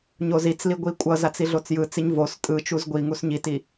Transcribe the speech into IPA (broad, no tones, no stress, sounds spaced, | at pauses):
ɲ o z i t͡s l i ɡʷ i kʷʼ ʌ z a t͡s i ɮ o t͡s j ɯ t͡s i ɲ v o s tʼ ɯ t͡ʃ u z ɡʷ i ŋ u s ɲ i t i